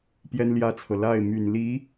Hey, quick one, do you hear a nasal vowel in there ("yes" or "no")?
no